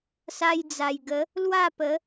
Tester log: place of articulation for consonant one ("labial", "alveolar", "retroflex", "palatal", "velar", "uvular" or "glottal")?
alveolar